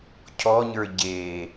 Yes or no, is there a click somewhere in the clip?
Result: no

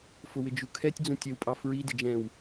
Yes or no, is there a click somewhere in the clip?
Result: no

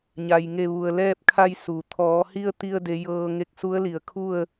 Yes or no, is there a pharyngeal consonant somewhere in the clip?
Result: no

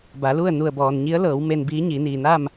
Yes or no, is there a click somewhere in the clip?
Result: no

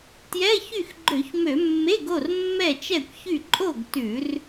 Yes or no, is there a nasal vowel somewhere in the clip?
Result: no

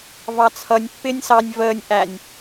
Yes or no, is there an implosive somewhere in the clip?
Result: no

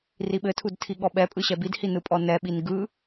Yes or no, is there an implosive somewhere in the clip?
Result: yes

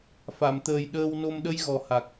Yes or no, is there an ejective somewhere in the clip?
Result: no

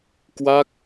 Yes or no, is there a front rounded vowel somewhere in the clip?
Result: no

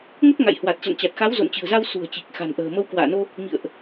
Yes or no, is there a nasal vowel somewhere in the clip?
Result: no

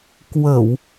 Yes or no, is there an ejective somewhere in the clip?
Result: no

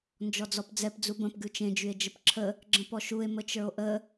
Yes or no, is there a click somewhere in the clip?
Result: yes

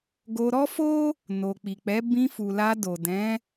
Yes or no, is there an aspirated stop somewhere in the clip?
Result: no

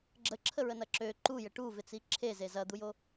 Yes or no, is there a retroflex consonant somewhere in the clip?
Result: yes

